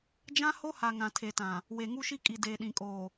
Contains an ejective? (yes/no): yes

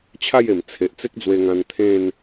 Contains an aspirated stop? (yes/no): yes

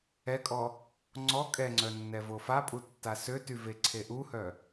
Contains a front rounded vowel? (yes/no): yes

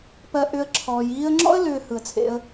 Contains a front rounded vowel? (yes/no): yes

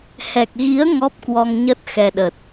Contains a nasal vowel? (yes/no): no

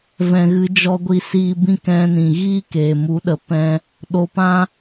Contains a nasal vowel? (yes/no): yes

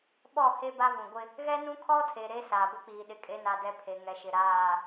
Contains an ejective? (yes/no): yes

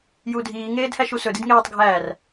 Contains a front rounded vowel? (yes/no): no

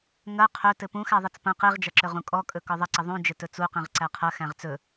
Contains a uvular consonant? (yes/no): yes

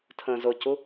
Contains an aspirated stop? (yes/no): yes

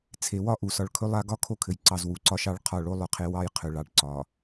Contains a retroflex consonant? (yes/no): yes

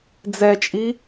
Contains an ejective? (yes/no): yes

